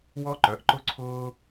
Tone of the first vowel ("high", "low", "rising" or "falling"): high